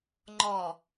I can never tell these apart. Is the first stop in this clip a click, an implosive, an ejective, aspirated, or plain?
click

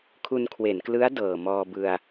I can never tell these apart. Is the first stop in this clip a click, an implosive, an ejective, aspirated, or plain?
aspirated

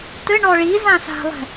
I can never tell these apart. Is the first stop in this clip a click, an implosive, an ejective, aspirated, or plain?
plain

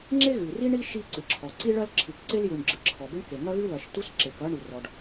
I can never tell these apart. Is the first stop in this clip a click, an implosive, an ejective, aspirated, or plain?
click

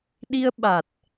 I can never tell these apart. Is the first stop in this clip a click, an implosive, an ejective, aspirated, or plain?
implosive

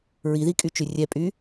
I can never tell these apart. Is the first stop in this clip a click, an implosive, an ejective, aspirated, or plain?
ejective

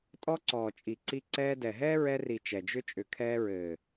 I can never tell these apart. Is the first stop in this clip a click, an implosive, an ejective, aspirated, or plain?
ejective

